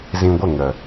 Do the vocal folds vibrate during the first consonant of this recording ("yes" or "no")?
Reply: yes